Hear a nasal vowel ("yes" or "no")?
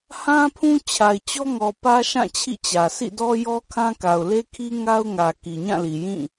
yes